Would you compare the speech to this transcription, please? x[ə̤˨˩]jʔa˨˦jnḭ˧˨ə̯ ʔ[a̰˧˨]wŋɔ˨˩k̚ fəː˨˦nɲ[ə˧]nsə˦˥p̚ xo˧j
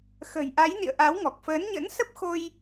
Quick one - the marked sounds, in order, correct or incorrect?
correct, incorrect, incorrect

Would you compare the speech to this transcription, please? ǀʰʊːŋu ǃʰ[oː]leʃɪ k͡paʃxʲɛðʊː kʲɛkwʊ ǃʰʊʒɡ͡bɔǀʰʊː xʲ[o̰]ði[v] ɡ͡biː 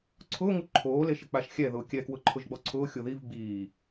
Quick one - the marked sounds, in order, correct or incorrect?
correct, incorrect, correct

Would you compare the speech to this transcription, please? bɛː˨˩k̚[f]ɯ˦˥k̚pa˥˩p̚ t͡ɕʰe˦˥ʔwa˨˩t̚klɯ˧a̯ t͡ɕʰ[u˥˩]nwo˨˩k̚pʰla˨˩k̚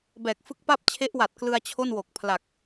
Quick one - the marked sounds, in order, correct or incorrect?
correct, incorrect

